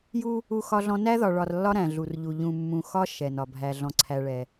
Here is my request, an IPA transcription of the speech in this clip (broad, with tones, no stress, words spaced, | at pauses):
ju˦ | u˦xɒ˦ɮɔ̃˦ næ˦ðɒ˨ɭɒ˨rlːɒ˦ ɾæ̃˨ɮu˨rʎu˨ ʎũ˨mːũ˨xɒ˦ ʃɛ˨nɒ˨ bʱæ˨ɮɔ̃˨ǀʰæ˨ɭɛ˨